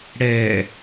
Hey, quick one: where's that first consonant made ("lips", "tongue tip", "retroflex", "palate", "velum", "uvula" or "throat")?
retroflex